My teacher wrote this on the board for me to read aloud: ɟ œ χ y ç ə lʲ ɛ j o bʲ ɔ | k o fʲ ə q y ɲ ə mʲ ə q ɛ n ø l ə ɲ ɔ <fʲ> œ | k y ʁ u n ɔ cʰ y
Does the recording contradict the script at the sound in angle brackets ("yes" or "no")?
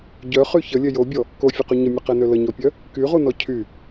yes